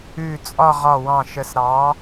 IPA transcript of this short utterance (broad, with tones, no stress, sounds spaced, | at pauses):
ʉ˧˩ t͡sʼ ɒ˥˧ ʁ ɒ˧˩ w ɑ̃˧˩ ʃ ə˩˧ s ɾ ɑ˩˧